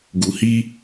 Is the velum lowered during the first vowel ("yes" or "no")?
no